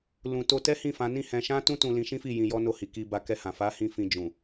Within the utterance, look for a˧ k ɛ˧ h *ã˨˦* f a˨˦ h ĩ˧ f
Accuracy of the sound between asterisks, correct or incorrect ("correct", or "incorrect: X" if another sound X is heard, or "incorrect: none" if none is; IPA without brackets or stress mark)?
incorrect: ã˨